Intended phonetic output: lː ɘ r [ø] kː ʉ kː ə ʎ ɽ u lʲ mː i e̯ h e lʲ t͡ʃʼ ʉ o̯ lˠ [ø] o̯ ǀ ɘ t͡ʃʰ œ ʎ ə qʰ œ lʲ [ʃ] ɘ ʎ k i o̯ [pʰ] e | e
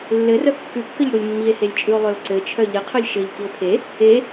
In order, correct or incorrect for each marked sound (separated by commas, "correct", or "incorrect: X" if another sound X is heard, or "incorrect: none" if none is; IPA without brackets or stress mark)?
incorrect: œ, correct, correct, correct